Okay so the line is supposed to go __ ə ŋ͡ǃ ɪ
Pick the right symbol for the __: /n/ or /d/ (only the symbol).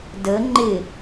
d